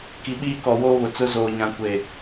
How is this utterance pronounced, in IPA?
k i˨ ɓ iː˦ k ɔ˨ w oː˦ β ʊ˨ t͡s ʊ˦ z oː˨ ɲ ã˨ kʷ e˨

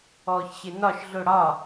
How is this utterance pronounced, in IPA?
ɔː ç ɕ ɪ n ɒ ʃ ɮ ʊ ɽ ɒ

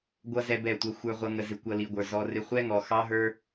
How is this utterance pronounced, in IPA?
ɡʷ ʌ˧ z ɛ˦ b ɛ˦˨ tʷ ʌ˦ xʷ ə˞˧ ʁʷ ʌ˧ ŋ ə˧ z ɪ˧ kʷ ʌ˦ l i˧ ɡʷ ə˞˧ z ɔ˧ r ɪ˧ χʷ ɛ˦ ŋ ɔ˨ x ɑ˦ ɦ ə˞˦

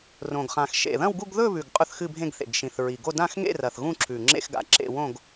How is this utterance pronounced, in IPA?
r õ˨˩ ɡ χ ã˨˩ x ʃ ḛ˨˩ ð ɐ̃˥˧ w ɡ u˥˧ ɡ ð ɵ˥˧ β ʉ˨˩ ɡ qʼ ɵ˥˧ θ x ɨ˥˧ bʱ ẽ˥˧ ɡ θ ḛ˨˩ ɡ ʃ ĩ˨˩ θ ɹ i˨˩ ɡ o˥˧ d ã˥˧ x ŋ ḛ˥˧ r ɐ˨˩ θ ɣ ũ˥˧ ǁʰ ʉ˨˩ ŋ͡ǁ ḛ˥˧ x ɡ a̰˨˩ ǁ ḛ˥˧ w õ˥˧ ɡ

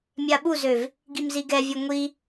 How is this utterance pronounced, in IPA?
mʲ a ɓ u z ø v | ɡ i m z i ɡ ɛ vʲ œ ŋʷ i

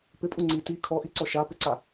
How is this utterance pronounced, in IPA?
p ɪ pʼ u ŋ͡ǀ i t i kʰ ɔ ʔ i ǀ ɔ ʃ a p ɪ ǀ a

